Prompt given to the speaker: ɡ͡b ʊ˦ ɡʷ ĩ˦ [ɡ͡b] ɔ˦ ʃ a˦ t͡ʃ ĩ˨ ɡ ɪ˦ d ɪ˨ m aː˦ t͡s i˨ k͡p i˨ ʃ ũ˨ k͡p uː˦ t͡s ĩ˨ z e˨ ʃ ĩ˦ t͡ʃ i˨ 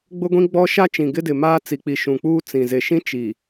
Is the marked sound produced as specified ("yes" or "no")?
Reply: yes